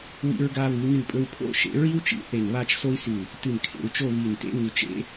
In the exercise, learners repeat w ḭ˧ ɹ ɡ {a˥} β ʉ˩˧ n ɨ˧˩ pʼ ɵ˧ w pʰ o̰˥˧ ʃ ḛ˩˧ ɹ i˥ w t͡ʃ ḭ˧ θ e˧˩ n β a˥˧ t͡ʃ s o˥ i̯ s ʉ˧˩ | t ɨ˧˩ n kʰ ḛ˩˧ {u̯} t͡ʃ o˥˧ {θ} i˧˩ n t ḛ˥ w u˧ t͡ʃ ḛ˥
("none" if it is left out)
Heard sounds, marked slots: a˧, u̯, β

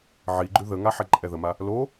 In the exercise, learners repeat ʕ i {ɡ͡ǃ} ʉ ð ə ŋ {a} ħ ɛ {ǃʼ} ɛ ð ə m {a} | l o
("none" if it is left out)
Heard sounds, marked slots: ɡ͡ǃ, a, ǃʼ, a

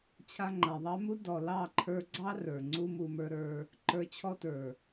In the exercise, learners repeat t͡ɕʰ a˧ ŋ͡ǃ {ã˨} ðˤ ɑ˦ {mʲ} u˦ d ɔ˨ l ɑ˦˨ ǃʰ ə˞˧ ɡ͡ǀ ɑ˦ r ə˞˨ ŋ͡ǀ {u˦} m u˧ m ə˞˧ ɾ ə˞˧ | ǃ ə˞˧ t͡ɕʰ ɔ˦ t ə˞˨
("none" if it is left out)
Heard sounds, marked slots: a˨, m, u˦

